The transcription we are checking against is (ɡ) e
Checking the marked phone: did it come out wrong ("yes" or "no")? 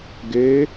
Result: no